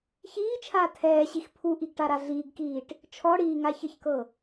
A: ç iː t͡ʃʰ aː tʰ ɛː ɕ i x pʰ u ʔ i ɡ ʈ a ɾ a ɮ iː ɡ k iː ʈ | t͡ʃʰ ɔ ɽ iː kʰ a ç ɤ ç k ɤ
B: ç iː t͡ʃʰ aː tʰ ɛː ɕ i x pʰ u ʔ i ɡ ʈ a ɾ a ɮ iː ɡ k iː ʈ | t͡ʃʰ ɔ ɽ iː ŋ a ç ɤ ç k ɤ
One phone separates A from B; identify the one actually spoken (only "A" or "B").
B